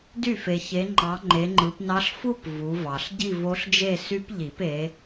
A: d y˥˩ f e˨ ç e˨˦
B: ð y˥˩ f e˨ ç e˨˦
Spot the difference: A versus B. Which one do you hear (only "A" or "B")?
A